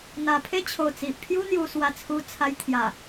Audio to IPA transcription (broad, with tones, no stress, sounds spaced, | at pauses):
n̪ a˨˩ pʰ e˥˧ t͡ɕʰ o˨˩ t͡s i˨ ʔ pʰ j u˦ n̪ j u˧ s w a˧ t͡sʰ u˧ t͡sʰ a˧ j t̪ʰ j a˨˩